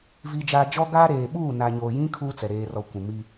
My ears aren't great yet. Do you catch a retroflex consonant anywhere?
no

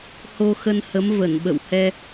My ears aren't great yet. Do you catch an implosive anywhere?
yes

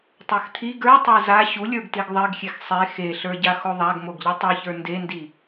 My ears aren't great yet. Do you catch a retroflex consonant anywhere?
no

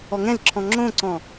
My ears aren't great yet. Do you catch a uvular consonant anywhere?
no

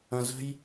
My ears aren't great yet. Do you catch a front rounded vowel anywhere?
no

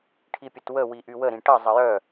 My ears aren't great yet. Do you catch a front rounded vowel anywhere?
yes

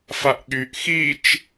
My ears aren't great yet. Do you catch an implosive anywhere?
yes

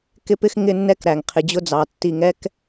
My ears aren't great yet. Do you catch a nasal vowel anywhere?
no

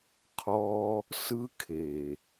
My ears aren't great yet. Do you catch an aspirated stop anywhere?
yes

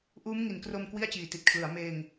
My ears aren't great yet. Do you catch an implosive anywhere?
no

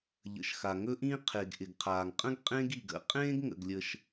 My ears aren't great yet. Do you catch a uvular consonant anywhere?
yes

